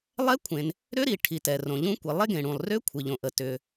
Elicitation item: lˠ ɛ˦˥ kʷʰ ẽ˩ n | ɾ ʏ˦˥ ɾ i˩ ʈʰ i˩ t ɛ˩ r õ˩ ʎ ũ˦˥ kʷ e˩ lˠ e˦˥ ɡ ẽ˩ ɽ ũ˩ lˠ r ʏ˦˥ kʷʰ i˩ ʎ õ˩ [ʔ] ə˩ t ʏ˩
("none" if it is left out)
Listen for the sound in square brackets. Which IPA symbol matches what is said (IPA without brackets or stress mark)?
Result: ʔ